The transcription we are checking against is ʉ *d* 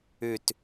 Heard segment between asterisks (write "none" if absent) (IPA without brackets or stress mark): t